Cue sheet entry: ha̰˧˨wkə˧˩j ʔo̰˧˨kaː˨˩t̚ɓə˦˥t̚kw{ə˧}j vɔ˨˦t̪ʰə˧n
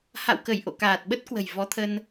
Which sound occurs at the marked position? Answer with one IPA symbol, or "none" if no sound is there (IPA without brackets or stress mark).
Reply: ə̤˨˩